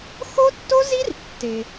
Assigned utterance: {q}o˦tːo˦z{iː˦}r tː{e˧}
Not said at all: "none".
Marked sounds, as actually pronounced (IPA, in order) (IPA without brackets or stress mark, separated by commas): x, i˦, e˧